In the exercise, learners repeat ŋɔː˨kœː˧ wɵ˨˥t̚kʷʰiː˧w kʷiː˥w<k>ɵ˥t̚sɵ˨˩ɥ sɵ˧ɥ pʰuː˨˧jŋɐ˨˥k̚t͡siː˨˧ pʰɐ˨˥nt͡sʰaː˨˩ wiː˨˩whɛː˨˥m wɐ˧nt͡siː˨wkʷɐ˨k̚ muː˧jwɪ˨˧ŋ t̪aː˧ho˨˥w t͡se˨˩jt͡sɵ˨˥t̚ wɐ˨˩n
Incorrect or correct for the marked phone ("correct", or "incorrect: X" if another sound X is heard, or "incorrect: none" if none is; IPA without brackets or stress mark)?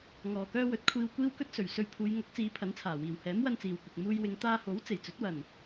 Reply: correct